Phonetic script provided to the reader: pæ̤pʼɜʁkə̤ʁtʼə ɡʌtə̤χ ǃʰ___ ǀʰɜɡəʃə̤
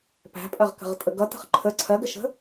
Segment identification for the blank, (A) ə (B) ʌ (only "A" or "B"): A